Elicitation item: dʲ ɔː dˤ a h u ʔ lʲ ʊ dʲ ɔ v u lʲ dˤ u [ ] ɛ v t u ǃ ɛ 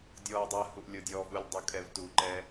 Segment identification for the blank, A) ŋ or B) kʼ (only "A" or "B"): B